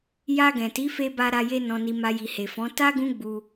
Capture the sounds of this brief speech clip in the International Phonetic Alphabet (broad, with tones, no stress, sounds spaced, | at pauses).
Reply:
j a˧ ɡ ɛ̃˨ t i˨˦ f e˧ b a˧ ɾ a˧ j e˧ n ɔ̃˨ n i˨ m a˧ j i˨ h e˨ f ɔ̃˨˦ t a˦ ɡ ũ˦ ɡ͡b u˧